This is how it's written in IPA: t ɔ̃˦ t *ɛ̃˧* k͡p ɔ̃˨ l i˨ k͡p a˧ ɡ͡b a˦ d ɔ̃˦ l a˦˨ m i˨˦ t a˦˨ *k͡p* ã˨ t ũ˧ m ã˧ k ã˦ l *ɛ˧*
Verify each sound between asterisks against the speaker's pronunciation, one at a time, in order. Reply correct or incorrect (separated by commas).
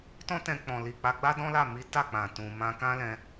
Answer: correct, correct, incorrect